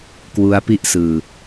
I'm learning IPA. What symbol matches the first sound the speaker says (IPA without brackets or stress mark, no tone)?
k